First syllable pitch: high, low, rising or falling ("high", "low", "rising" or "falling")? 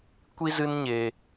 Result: high